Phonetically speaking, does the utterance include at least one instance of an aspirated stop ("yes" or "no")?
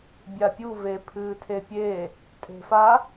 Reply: yes